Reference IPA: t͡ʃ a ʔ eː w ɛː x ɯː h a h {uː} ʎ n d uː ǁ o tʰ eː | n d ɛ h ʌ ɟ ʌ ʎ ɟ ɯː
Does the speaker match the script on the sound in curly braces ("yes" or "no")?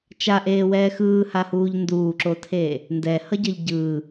yes